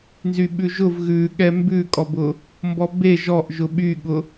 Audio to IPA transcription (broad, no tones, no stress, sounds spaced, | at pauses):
n z y ɓ ʉ ʒ ʊ v ɣ ʉ ɠ ɛ m b ʉ kʼ ɔ b ʊ | m b ɔ b e ʒ ɔ ʔ ʒ ʊ ɓ y ɠ ʊ